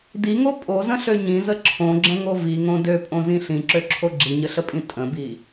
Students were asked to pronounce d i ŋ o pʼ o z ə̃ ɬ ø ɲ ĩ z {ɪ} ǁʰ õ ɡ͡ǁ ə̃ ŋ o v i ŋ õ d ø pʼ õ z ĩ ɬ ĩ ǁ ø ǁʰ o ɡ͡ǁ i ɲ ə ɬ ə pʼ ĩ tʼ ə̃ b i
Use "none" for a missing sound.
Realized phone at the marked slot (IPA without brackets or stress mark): ə